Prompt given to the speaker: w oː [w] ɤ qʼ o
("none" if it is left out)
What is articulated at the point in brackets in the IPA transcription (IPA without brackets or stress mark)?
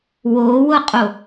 w